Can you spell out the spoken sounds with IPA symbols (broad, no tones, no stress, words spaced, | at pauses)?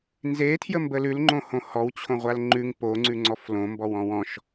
nze tʰjəmbəlʉl ŋ͡ǃõhõhɔw t͡ɕʰõʁʷalŋ͡ǃʉŋ po ŋ͡ǀʉŋ͡ǀɔflõ mbɔwɔ̃wɔ̃ʃ